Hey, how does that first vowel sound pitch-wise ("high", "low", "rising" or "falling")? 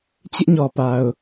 high